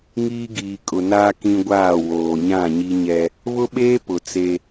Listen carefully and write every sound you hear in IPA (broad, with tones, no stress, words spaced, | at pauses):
ŋiː˦ ɡiː˨kʼʊ˨ naː˦ kĩ˦ɡʷaː˦˨woː˨ ɲã˦˨ɲi˦ɲɛ˦ | βʊ˦ɓeː˦ pʊ˨t͡se˦